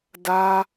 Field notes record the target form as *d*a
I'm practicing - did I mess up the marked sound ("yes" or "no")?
no